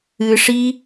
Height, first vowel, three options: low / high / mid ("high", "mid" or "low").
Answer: high